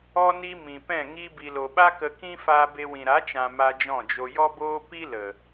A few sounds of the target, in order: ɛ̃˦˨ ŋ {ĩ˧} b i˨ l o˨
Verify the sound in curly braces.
incorrect: i˧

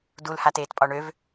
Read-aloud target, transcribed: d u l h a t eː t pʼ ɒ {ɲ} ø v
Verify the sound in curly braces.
incorrect: ɳ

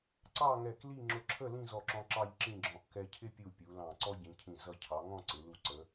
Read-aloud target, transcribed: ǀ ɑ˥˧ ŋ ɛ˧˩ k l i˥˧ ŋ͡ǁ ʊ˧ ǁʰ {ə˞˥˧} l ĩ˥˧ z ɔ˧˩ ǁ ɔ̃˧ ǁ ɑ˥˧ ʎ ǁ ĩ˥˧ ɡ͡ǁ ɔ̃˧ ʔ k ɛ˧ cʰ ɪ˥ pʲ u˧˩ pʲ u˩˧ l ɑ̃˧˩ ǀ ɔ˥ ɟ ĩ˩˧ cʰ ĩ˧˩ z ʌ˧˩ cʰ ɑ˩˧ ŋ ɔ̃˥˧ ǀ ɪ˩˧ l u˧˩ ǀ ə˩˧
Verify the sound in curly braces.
incorrect: ə˥˧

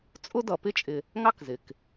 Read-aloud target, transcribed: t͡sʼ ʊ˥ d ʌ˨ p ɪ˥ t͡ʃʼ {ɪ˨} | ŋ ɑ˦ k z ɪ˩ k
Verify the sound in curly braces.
correct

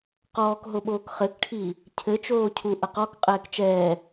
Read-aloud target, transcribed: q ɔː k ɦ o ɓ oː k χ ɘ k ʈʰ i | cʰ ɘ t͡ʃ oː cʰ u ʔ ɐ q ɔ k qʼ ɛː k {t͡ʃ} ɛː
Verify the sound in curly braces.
correct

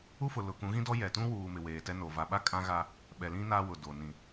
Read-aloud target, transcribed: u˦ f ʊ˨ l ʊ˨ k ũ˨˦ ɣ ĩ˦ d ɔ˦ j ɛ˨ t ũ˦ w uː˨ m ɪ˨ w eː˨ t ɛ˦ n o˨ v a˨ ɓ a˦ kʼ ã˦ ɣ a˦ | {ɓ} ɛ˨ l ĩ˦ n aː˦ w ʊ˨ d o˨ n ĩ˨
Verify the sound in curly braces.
correct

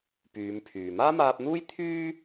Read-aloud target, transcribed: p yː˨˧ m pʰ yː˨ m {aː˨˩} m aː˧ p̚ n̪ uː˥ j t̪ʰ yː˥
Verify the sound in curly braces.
incorrect: aː˥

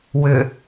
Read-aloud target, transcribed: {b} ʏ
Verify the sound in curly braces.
incorrect: w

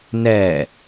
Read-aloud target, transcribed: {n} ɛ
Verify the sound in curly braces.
correct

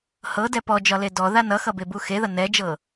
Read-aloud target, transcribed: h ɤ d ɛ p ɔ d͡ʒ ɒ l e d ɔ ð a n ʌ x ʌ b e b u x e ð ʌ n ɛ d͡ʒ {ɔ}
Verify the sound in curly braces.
incorrect: ɤ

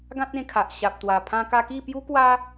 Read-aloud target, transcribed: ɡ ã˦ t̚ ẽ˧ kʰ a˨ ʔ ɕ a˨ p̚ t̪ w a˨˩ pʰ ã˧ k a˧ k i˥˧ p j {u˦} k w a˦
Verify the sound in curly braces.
correct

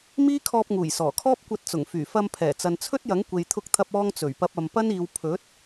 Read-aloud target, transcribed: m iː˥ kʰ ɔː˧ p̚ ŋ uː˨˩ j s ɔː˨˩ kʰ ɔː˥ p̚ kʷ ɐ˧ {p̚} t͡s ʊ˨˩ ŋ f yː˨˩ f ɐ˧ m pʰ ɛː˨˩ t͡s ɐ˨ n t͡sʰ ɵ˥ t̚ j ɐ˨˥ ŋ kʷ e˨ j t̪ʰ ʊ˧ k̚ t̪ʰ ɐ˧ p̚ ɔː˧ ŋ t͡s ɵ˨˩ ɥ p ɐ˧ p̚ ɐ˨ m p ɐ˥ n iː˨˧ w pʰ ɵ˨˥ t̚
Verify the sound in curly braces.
incorrect: t̚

